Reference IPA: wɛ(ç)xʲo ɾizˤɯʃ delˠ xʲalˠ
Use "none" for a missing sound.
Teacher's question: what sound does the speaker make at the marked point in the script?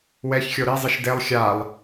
ç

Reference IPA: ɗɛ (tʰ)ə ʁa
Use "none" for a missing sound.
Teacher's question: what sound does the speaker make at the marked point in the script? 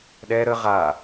ɾ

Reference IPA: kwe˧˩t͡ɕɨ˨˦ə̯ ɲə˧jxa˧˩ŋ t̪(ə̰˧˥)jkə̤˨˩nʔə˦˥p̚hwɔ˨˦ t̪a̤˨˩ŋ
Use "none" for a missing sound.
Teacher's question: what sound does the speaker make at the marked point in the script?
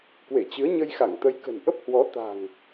ə˨˦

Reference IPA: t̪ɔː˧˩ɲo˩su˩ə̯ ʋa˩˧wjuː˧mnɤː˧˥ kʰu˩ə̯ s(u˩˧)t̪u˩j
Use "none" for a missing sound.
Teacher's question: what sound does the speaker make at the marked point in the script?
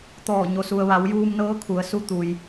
u˧˥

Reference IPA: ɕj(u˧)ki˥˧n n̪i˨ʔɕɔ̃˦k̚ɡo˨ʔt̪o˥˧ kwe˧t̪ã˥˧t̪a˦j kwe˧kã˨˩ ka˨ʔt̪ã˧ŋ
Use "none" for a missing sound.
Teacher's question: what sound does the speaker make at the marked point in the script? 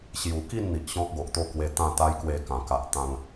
u˨˩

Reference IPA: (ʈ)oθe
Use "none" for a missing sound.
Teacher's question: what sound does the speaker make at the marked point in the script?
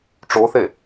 ʈ͡ʂ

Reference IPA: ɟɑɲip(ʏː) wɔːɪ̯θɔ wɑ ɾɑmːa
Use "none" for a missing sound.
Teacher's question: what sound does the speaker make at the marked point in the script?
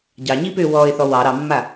ʏː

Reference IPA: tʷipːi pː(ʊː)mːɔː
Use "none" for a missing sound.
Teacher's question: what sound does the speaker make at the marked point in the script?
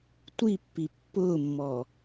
ʊː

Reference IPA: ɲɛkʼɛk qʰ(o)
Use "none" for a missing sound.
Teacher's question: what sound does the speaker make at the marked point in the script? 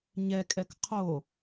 o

